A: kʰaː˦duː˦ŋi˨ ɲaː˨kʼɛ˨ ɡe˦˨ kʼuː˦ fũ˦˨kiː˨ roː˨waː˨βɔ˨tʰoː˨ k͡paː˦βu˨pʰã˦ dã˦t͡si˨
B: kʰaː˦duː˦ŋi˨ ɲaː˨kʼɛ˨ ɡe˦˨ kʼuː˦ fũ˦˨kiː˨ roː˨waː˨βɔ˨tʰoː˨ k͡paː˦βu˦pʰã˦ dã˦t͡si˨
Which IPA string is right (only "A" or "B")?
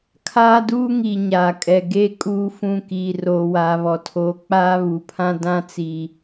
A